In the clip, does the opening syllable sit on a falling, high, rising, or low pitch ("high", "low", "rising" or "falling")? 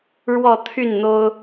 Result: low